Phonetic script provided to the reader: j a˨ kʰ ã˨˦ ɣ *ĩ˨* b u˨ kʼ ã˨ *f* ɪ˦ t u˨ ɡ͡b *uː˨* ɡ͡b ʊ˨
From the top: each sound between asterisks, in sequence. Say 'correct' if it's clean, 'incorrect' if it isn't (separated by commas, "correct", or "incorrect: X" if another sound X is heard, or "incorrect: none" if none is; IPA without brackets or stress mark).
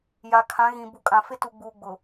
correct, correct, correct